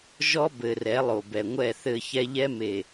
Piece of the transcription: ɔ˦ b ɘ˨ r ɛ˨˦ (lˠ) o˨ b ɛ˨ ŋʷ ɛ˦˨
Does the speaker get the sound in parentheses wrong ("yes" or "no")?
no